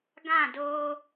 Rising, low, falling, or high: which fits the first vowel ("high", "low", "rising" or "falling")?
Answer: falling